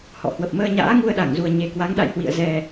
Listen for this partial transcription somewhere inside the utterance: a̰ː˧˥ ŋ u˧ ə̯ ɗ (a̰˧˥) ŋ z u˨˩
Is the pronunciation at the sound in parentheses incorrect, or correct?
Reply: incorrect